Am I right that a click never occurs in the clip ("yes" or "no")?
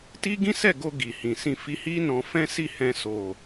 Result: yes